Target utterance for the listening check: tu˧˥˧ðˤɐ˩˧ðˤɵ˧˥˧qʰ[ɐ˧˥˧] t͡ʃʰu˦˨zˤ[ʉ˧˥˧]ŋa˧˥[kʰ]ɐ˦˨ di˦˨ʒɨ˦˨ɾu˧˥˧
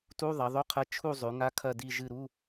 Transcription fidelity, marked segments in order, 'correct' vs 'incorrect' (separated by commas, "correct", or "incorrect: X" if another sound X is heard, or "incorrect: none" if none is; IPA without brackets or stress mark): incorrect: ɐ˧˥, incorrect: ʉ˩˧, correct